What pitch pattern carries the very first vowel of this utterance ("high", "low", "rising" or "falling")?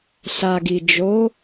low